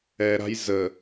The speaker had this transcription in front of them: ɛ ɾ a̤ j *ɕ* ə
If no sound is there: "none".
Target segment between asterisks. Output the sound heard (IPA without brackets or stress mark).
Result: z